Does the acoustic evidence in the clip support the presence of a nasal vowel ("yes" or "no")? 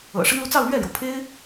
no